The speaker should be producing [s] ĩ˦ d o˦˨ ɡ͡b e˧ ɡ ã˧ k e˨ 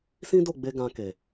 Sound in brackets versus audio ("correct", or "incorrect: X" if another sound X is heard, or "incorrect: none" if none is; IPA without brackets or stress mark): correct